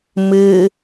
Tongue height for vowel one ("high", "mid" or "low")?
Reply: high